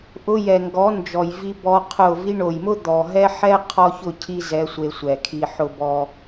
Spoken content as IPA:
ʔ ʊ˧ j ɛ˨ ŋ ɡ ɔ˨˦ n d͡ʒ ɔ˨ j v i˧ b ɔ˧ qʰ ʊ˦˨ v i˧ ɳ o˨ j m ʊ˦ d̪ ɔ˨ ɦ ɛ˦ ħ ɛ˦ qʰ ɔ˦ ç ʊ˦˨ cʰ i˦ z ɛ˨˦ sʷ e˧ sʷ ɛ˨ kʰ i˧ ħ ʊ˦ b ɔ˦

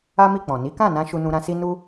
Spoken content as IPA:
a˦ m i˦˨ k͡p ɔ̃˨ n i˨˦ k ã˦˨ n ã˧ ʃ u˧ n ũ˧ ɾ ã˧ s i˦ n u˦

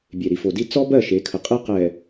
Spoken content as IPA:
bʲ e˨ ɾ i˨ f o˨ d i˦ t͡s ɔ˦ b ɜ˦˨ ʃ e˨˦ kʰ ə˨ qʼ e˦ q ɛ˨

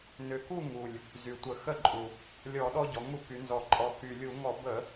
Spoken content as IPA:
n ʏ˨˩ k u˥˨ ŋ u˨˩ lʲ | z y˨˩ tʷ ə˧˩˧ x ə˥˨ ǃʼ u˨˩ | lʲ ɔ˧˩˧ ɗ ɔ˦ ɟ ɔ˩˧ ŋ u˧˩˧ k y˩˧ n z ɔ˨˩ ǃʼ ɔ˨˩ k y˨˩ lʲ u˧˩˧ ŋ ɔ˧˩˧ b ə˧˩˧

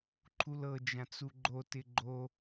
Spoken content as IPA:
ǃʰ u l ɤ d͡ʒ ã t͡s u ɡ͡ǃ o t ɪ ɡ͡ǃ o

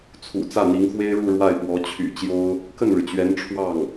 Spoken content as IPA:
t͡sʰ ṵ˨˩ t͡s ä˥˩ n̪ i˧˥ ŋ x w e˥ ɪ̯ ɻ u˥˧ ɻ w a˥˩ ɪ̯ p w ɔ˧˥ t͡ɕʰ y̰˨˩ t͡ɕ j o˥ ʊ̯ | k ə˥˩ n ɻ ɻ̩˩ t͡ɕ ɥ ɛ˧˥ n ʈ͡ʂʰ w ɑ˥˩ ŋ

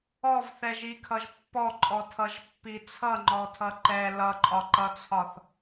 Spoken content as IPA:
ɔ v θ ɛ ʒ i kʰ ʌ ʒ pː ɔ ǃʼ ɔ tʰ ʌ ʒ pː i t͡sʰ ʌ ŋ͡ǃ ɔ tʰ ʌ ǃ ɛ l ʌ ǃʼ ɒ ǃ ʌ t͡sʰ ɒ θ

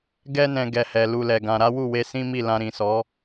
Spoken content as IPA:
ɡ ɛ˧ n ɛ̃˨ ɡ ɛ˨ h ɛ˨ l u˧ l ɛ˨ ɡ ã˧ ɾ a˦ w u˦˨ w e˧ s ĩ˦ m i˦˨ l ã˧ ɾ ĩ˨ s ɔ˨˦

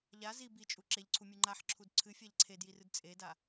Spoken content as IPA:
ʎ a z i b i t͡ʃʼ u ǁ e ʎ ǀʰ u mʲ u ŋ͡ǃ a ħ ǁʰ u d ǀʰ ɨ fʲ a ʎ ǀʰ e d j i r ɨ d t͡sʼ e d a

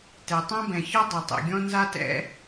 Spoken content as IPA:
t ɛ˩ tˤ ã˥ b ɛ̃˩ ç ɔ˥ dˤ ɵ˩ tˤ ɛ̰˩ ɡʲ ɔ̃˥ n z a˥ t ɛ̰˥

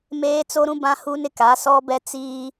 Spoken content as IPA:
m eː˦ t͡s o˦ ɾ ũ˦ b ã˦ h u˦ n ɪ˦ k a˨˦ s ɔ˦ b ɛ˦ t͡s iː˦

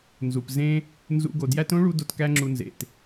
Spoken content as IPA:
n z u˨ p z ẽ˦ | n z ṵ˧ ɡ o˨ d j æ˦ t õ˦ ɭ u˧ d o˦ t k æ˦ ŋ͡ǁ u˧ n z ḛ˨ t

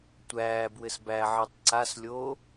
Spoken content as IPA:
tʷ æː b w ɘ s b æ ʕ ɘ tˤ ǀ a s lʲ oː

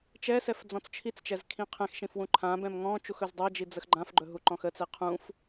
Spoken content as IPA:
t͡ʃ ɛ s ɛ f d͡z ɔ̃ t͡s t͡ʃʰ i t͡s t͡ʃ ɛ z kʰ ĩ qʰ ɛ̃ x ʃ ĩ f w ũ ǃʰ ã b ɛ̃ m ŋ ɔ̃ t͡ʃ u x ɵ z dˤ ɛ d͡ʒ i d͡z ə x ɡ͡ǃ ã f ɡ͡ǃ ɵ ɦ u ǃ ɔ̃ x ə t͡s ɛ qʰ ũ f

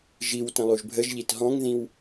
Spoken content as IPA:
ʒ i w t ə̃ lˠ u ʒ bʱ ə ʒ ʎ i t ɦ ɔ̃ ŋ ð ĩ w

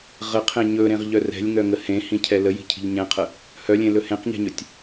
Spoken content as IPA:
ʁ ə qʰ ẽ ɲ ɵ ɾ ẽ ʁ ʎ œ r ɛ̤ lʲ ŋ œ ŋ ə h ẽ h ĩ cʰ ɛ l ə j i̤ cʰ i̤ ʎ ɲ ɛ̃ qʰ ə | h œ lʲ ẽ l ɵ h ẽ q ɲ ɛ̤ ɲ ɵ tʲ

